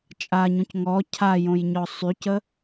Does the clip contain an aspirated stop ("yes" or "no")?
yes